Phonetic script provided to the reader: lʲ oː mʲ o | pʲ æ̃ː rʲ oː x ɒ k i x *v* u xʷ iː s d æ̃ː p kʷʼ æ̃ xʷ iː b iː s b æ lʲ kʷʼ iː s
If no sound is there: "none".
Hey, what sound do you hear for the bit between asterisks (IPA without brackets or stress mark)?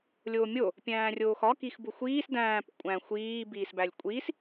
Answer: b